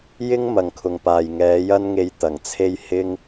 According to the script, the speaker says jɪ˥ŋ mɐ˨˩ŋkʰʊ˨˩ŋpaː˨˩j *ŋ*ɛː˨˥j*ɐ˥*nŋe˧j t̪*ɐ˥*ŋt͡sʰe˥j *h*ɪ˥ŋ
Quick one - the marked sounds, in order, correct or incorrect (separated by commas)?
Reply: correct, correct, incorrect, correct